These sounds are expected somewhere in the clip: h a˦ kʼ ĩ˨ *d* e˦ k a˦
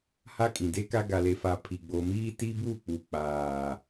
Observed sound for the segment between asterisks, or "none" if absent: d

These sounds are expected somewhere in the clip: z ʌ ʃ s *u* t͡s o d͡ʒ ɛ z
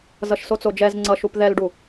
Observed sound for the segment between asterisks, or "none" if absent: o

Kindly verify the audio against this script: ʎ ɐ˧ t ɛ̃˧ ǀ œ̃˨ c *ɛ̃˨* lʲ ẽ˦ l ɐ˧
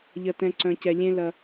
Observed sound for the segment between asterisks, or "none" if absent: ɛ˨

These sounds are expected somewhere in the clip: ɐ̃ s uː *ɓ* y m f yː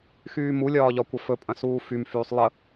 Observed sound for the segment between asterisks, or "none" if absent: f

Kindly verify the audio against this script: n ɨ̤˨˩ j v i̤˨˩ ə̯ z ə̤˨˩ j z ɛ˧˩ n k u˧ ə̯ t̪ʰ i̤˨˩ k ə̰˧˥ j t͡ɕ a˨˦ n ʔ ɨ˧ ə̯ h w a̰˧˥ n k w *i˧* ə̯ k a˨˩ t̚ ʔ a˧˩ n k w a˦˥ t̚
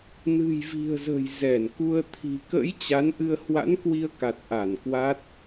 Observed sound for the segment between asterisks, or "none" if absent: i˧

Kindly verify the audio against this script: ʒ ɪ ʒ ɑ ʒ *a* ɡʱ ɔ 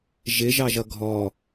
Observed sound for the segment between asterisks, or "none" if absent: ʌ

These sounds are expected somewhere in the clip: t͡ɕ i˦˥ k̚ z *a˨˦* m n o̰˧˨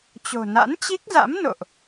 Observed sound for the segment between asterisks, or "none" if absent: a̰˧˥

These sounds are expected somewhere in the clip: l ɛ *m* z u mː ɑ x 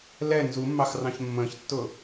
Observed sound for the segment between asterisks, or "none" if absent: n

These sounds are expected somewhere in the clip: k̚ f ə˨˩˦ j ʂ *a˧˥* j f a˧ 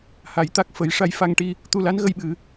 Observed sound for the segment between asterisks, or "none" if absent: a˧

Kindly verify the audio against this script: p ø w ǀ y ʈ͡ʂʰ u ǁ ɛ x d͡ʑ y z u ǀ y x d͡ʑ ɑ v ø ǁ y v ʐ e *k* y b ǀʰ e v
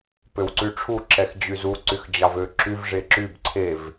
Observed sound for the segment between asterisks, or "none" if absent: ǁ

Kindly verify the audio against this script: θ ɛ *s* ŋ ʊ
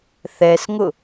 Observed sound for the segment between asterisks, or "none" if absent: s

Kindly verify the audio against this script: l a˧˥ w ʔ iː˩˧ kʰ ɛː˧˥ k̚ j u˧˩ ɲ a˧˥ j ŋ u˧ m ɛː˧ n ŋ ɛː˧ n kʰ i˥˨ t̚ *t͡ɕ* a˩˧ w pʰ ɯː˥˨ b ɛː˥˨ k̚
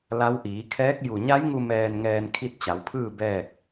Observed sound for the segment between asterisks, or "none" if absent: t͡ɕ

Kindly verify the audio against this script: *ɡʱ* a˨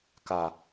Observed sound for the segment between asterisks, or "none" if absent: k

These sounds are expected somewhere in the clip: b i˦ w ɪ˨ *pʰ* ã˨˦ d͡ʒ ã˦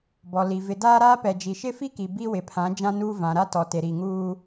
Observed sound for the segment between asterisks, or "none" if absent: pʰ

